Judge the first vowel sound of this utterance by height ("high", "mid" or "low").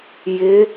high